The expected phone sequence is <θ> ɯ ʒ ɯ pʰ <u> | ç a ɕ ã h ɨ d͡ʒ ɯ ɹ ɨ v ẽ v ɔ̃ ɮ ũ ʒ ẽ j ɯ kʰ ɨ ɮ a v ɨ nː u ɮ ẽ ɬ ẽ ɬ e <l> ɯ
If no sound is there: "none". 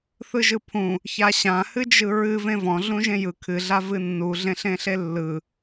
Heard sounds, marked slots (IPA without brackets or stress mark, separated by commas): θ, ũ, lː